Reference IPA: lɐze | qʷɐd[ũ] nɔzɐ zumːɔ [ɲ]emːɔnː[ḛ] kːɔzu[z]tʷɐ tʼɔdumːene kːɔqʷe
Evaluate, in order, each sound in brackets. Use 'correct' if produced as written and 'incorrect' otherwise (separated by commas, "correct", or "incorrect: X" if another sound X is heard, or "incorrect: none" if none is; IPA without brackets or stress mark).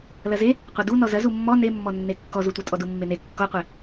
incorrect: u, incorrect: n, incorrect: e, incorrect: none